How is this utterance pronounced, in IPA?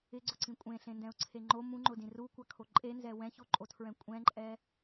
ɪ ɡ͡ǀ ʊ ǀ ĩ kʷʼ ẽ ɬ ẽ n d ɛ̃ ʊ̯ ǀʰ e ŋ͡ǃ o m ũ ŋ͡ǃ ʊ d ĩ r u kʷ a kʰ o ǃʼ e n z ɛ w ɛ̃ ç o ǃʼ o tʰ ɹ ɛ̃ kʷʼ ɛ̃ ǃʼ ɛ

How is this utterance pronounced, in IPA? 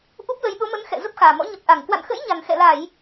ʔ u˦˥ p̚ l ə˨˦ j ɗ o˨˦ m ə˨˦ n x ɛ̰˧˨ z ə˦˥ p̚ x aː˨˩ m ɔ̰˧˥ ɲ ə˨˩ p̚ ʔ a˧˩ ŋ k w a̰˧˨ n x ə̰˧˥ j ɲ a˨˩ n x ɛ̰˧˨ l a˧˩˨ j

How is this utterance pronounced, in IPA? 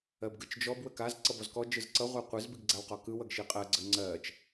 ɜ b ɡ ɯ t͡ʃ d͡ʒ ɔ b w ə k a z ǀ ʌ b ɔ z k ɔ d͡ʒ ɯ z ǀ ʌ ʁʷ a qʷ ɯ z b i ɡ ɡ͡ǀ a w q ɔ k ɯ w ʌ ɡ ʃ i qʼ ɜ ɡ͡ǀ ə ŋ͡ǀ ɜ t͡ʃ

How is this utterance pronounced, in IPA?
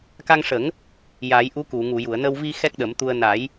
k a˧ ŋ ʂ ə˨˩˦ ŋ | j a˨˩˦ j ʔ u˧˥ k u˨˩˨ ŋ u˨˩˨ j u˨˩˨ ə̯ n ə˧ w v i˧ x ɛ˦˥ k̚ ɗ ə˨˩˦ m t̪ u˧ ə̯ n a˨˩˦ j

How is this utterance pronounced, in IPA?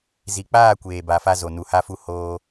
z i˨ k͡p aː˦˨ kʷ eː˨ b a˨ f a˧ z o˨ n u˨ h a˧ f u˧ h oː˧

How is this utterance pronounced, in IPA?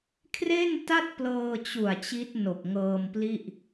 kʰ r e˥˩ n t a˥˩ t̚ p l ɤː˧ t͡ɕ u˨˩ a̯ t͡ɕ i˦˥ t̚ n o˨˩ k̚ ŋ ɤː˧ m p l i˥˩ ʔ

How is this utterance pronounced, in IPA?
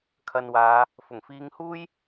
kʰ ɐ˨ n w aː˨˧ | f ʊ˨˩ ŋ f iː˧ ŋ h uː˥ j

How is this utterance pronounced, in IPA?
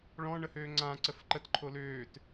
ɭ ɔ̃ ɳ ə h øː ŋ͡ǀ ã ǀ ə f ǃ ə t ǃʰ o l øː t

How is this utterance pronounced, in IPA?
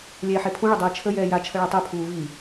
lʲ ɛː ħ e pʰ ũ ɭ ə dˤ ɛː t͡ʃʰ ə j ɛː j a t͡ʃʰ ə ɭ ɛ tˤ ø pʰ uː v i

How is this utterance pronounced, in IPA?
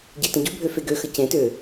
ɟ e t ə̃ ɟ u bʱ ø f e ɡ ø x ə c ẽ t ø

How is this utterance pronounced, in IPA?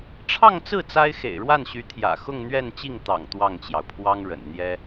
ʈ͡ʂʰ ɑ˥˧ ŋ t͡s ɹ̩˥˩ t͡s a˥ ɪ̯ x ḛ˨˩ ɪ̯ ɻ w a˥˩ n ɕ y˧˥ t̪ʰ j ä̰˨˩ x ʊ˥˧ ŋ n̪ ɥ ɛ˥˧ n t͡ɕ i˥˩ ŋ t̪ ɑ̰˨˩ ŋ t̪ w ɑ˥˩ ŋ t͡ɕ j ɑ˩ ʊ̯ pʰ w ɑ˥ ŋ ɻ ə̰˨˩ n n̪ j ɛ˥

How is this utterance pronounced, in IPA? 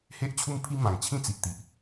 h e˦ ʔ t͡ɕʰ u˦ m pʰ i˦ m ã˨˩ ŋ t͡ɕʰ ĩ˥˧ t͡s i˨ ʔ t̪ i˨ ʔ

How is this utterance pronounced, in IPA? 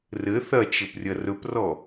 r ɘ θ ɐ t͡ʃ ɘ p rʲ ɐ r ɵ p r ɔ

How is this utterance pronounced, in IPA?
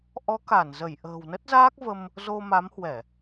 ʔ ɔ˨˦ k a˧˩ n z ə˧˩ j ʔ ə̤ː˨˩ w n ə˦˥ t̚ z aː˦˥ k̚ v ə˧ m | z o˧ m a˨˦ m h w ɛ˧˩˨

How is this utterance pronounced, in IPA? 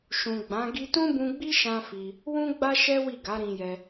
ʃ ũ˨ ɡ͡b ã˨˦ ɡ i˧ t ũ˦ b ũ˧ ɡ͡b i˦ ʃ ã˦ f i˧ | w ũ˦ ɡ͡b a˦ ʃ ɛ˦ w i˦˨ ɡ a˨˦ ɾ ĩ˧ j ɛ˧

